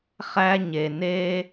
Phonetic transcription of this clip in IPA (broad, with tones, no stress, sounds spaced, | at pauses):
χ æ˧ ɲ e˩ n e˧